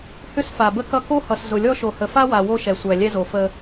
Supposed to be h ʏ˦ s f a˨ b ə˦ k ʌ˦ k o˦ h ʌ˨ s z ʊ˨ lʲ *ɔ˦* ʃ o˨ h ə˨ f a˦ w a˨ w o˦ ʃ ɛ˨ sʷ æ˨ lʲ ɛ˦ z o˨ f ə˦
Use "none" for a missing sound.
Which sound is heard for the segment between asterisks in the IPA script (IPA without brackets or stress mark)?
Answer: ɔ˦